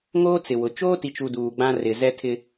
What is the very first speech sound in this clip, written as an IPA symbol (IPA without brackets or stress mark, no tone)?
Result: ŋ